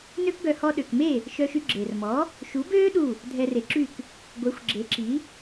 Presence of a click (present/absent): present